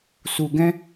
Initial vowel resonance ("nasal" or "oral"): oral